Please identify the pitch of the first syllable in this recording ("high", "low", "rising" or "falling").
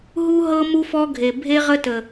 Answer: high